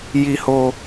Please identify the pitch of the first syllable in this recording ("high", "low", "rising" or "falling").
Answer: low